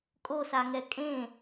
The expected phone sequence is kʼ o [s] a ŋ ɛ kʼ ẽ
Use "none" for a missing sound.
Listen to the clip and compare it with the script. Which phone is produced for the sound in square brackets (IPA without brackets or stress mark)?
s